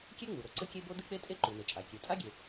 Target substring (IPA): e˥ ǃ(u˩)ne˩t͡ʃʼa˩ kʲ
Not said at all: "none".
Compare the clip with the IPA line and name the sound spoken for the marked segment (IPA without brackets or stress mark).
u˩